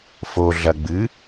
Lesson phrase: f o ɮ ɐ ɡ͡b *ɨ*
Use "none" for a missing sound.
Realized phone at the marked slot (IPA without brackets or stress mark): ɨ